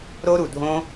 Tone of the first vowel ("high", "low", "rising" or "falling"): high